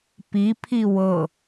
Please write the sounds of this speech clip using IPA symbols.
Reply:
p i pʰ i w ɤ

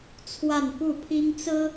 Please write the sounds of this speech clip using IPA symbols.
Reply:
t͡sʰ w a˥˧ n p u˥˩ pʰ i˥ ŋ t͡s ɹ̩˥

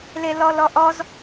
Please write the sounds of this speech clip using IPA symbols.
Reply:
l e l ɔ l ɔ ʔ ɔ z

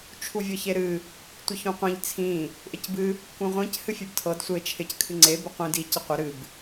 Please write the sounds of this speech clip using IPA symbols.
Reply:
t͡ʃʰ u vʲ ɤ ç e ɾ ɨ | tʷ ɨ ç ũ qʷ ĩ ʎ t͡sʰ ĩ | ʔ ɪ c b ɨ | k ũ ʁʷ ĩ c h ɨ fʲ ɨ b tʰ ɤ d sʷ e t͡ʃʰ ɪ c kʰ ɨ ŋ͡ǀ e b ɪ qʷ ĩ d i c ɪ qʷ ɪ ɾ ɨ b

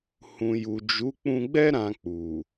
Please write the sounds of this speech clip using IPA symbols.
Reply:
h ũ˨ j u˨ d͡ʒ u˨˦ k͡p ũ˧ ɡ͡b ɛ˦ ɾ ã˧ k͡p u˨

